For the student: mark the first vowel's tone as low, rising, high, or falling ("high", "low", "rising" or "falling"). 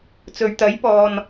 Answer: low